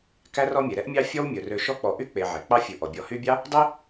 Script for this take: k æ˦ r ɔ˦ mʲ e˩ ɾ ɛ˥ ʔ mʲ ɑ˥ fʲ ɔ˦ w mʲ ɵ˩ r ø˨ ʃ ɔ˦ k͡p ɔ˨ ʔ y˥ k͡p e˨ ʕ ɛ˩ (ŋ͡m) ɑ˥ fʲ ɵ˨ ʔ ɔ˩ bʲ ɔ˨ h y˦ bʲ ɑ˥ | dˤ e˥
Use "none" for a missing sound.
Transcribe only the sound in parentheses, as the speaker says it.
k͡p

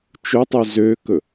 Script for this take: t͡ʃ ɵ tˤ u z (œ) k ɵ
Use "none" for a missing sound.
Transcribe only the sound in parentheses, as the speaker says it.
ø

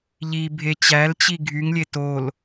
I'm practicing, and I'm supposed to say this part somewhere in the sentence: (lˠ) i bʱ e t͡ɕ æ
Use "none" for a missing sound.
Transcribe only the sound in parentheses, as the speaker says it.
ʎ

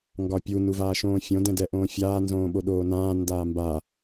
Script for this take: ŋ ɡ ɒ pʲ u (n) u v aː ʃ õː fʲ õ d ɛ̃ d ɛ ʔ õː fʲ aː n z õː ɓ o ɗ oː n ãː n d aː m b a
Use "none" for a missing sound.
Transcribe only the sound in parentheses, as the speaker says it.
n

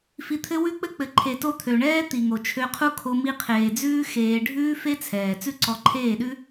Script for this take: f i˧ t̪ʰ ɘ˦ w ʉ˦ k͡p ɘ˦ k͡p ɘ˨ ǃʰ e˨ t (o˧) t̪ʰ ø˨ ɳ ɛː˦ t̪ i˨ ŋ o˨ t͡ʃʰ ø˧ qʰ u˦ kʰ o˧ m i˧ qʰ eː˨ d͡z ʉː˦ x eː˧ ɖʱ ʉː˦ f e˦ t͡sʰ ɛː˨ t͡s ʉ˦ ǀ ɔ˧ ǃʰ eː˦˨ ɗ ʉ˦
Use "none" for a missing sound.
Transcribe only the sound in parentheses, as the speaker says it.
o˧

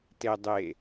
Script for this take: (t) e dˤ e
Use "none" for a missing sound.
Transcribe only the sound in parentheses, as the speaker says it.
t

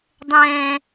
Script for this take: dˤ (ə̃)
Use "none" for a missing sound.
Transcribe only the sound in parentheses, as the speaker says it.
ɛ̃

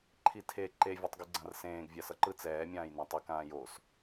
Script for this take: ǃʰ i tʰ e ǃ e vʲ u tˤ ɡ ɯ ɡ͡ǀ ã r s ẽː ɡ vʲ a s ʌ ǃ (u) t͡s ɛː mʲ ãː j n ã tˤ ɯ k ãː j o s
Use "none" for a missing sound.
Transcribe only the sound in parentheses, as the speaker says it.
ɯ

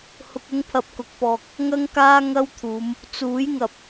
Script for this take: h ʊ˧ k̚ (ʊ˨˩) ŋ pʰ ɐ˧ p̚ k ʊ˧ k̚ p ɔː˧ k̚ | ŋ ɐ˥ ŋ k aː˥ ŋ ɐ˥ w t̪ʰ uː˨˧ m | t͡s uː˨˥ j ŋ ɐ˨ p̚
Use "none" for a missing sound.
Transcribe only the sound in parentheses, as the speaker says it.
ʊ˥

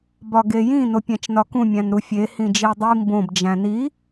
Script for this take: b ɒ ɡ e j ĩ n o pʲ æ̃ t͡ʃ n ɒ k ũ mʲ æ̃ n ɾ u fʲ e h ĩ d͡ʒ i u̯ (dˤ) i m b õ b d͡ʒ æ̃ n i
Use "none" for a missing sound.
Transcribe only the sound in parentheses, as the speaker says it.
dˤ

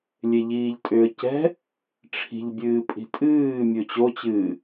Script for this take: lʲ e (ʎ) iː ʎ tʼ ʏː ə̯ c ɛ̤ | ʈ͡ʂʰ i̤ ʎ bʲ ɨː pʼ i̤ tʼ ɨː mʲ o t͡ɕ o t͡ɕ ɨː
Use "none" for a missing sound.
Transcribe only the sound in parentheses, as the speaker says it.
ʎ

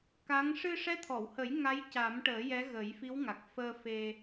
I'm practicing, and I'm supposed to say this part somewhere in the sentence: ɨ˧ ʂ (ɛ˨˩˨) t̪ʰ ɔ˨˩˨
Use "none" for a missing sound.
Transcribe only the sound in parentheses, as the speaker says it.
ɛ˧˥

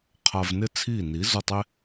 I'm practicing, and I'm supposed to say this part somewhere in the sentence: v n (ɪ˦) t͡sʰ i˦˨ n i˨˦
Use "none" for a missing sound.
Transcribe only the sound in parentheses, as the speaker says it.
ɪ˦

